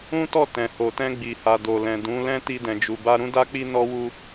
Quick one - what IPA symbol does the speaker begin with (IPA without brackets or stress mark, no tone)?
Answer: ũ